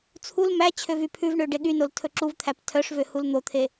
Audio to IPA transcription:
t͡sʰ u l m æ t͡ɕʰ ø v y pʰ ʉ v ɳ ø ɖ e ɠ y n o l tʰ ɵ ǁ u v t̪ʰ æ p tʰ œ ʂ v ø h u l n̪ o t̪ʰ e

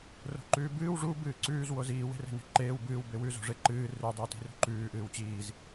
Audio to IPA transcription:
r o̤ ǃ ʉː b ɨː w ʐ u b ɨː ǀ ʉː z w o z iː w e̤ r e̤ n e̤ ǃ eː w b ɨː w b e w ʉ z o̤ ʐ e ǃ ɨː r ʉ dˤ i w t i̤ r ṳ ǃ ʉː ʔ ɨː w t͡ɕ iː z

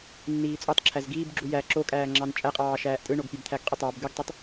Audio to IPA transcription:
nː iː t͡sʼ o tˤ ǁʰ æ z ɡ iː b ɡ͡ǁ u j æ ǁ o kʼ æː ŋ͡ǁ ɑ n t͡ʃʼ æ qʼ ɑː ʃ æː ʔ tʼ ɯ ɳ o ɡ pʲ ɑ b t̪ʰ æ ɡ qʼ ɯ tˤ ɑ b ɡ ɯ ɡ tˤ o tˤ

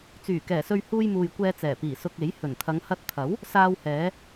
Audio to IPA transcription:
t͡s yː˨˩ k ɛː˨˩ s ɵ˧ ɥ h uː˧ j m uː˨ j kʷ ɛː˧ t͡s ɛː˨˩ p iː˨˩ s ʊ˧ k̚ e˨˥ j h ɵ˨˩ n t̪ʰ ɐ˨˧ ŋ h ɐ˧ t̚ t̪ʰ ɐ˨˥ w | s aː˧ w h ɛː˨˧

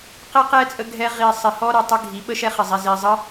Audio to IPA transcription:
q ɛ˦ q ɛ˦ t͡sʼ ə˧ ɡʱ ɛ˧ ʁ i˨ sˤ ɪ˨ h ɔ˦ ɾ ə˨ tˤ ə˦ ɡʱ i˨˦ ɓ ə˦ ʃ ɛ˦ χ ɪ˨ zˤ i˨ z i˨ zˤ ə˦

